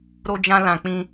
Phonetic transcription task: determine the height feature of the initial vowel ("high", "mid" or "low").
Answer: mid